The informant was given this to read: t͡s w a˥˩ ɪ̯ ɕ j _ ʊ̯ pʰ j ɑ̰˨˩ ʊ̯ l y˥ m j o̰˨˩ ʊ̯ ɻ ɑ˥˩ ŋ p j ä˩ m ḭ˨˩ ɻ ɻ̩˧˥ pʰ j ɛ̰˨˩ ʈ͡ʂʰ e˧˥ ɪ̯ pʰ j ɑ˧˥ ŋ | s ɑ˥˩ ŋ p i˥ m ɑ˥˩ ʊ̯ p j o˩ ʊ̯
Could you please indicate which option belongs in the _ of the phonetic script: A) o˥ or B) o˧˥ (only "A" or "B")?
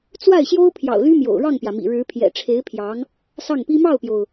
A